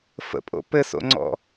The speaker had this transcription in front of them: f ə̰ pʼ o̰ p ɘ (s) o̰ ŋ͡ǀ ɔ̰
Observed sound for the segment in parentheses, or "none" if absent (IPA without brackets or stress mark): s